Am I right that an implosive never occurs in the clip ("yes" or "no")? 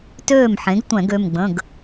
yes